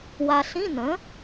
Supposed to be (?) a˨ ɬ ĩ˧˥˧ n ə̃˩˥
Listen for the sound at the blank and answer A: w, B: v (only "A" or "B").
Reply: A